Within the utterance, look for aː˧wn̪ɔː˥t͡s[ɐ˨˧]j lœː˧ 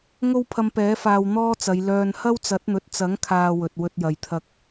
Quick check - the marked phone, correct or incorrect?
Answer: correct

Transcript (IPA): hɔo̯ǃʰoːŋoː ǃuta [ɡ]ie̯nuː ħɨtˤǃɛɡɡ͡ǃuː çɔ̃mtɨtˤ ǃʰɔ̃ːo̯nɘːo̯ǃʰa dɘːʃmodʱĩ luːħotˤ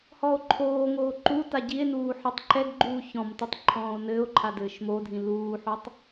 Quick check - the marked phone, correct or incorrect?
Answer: incorrect: ɟ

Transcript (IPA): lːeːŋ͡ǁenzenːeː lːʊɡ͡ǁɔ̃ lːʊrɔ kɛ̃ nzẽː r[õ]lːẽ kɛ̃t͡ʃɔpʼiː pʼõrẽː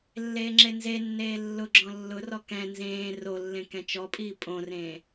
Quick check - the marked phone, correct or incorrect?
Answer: incorrect: o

